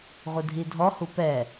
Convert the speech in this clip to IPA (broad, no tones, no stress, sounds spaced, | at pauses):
ʁ u dʱ i dʱ ɔ h u p ɛ